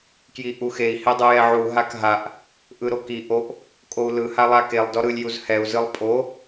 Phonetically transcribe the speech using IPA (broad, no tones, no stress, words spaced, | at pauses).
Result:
kjiʔuxei̯ hedˤɯjɛʕu ɦakɦaʔ | ʔɯɾoki ʔoʔ | kʼou̯lɯ halˠakelˠ dɔɾɯlʲ juzhɛu̯ zɯlˠpʼo